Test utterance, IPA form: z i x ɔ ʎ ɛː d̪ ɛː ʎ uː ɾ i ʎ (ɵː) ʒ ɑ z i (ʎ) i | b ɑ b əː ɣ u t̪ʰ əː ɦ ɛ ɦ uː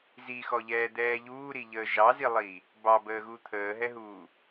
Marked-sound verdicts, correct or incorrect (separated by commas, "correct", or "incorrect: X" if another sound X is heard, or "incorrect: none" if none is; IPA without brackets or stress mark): incorrect: əː, incorrect: lˠ